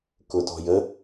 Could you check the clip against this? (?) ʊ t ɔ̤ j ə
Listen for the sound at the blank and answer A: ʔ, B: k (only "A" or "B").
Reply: B